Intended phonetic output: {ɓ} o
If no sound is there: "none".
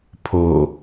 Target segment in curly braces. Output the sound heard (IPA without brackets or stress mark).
pʰ